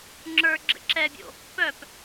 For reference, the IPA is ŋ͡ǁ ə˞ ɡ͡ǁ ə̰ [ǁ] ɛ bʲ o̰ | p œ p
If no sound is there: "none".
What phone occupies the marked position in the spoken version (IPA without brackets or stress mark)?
ǁ